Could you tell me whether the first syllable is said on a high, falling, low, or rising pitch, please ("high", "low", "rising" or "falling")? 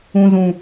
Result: low